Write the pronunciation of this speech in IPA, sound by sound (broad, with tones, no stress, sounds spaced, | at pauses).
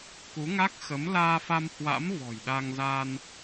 k u˨˦ ŋ a˦˥ k̚ x ə˨˦ m l aː˧ f a˧ m h w a̰˧˥ m v ɔ̤˨˩ j ɗ a˧ ŋ z aː˧ n